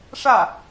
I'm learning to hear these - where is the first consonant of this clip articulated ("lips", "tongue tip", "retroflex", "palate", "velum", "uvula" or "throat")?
retroflex